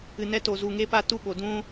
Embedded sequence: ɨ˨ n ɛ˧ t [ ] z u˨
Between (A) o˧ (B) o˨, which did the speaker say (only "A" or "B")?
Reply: B